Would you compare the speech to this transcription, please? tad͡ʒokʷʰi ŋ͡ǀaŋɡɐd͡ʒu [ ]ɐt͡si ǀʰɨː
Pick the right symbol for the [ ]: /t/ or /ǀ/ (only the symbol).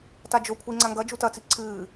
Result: t